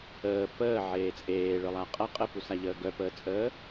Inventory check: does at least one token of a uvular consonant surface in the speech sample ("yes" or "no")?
yes